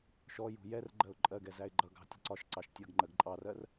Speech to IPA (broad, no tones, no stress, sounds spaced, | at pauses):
ʃ ɔ j ṳ j ɛ r ɡ͡ǃ ɜ ʊ̯ ǃʼ ɜ ɡ ɛ z æ ɪ̯ ɡ͡ǃ ʌ ɡ ɑ̤ tʲ ə̤ ǀ ɒ ʃ ǀ ɑ ʃ tʲ ʌ ɡ ŋ͡ǃ ɜ ɡ ǃʼ ɑ r ɜ r